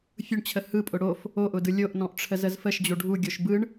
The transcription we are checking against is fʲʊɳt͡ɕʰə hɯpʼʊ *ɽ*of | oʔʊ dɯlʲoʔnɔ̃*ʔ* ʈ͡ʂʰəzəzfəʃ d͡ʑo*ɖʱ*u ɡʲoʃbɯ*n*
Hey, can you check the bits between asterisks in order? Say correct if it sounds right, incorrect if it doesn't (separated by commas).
correct, correct, correct, incorrect